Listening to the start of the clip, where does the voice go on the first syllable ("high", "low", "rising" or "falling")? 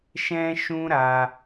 high